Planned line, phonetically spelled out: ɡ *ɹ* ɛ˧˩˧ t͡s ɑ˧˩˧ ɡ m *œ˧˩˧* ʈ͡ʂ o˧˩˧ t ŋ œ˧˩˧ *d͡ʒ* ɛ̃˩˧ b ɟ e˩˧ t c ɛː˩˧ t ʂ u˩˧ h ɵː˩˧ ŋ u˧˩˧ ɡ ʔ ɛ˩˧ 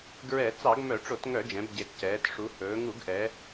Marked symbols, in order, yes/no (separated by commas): yes, yes, yes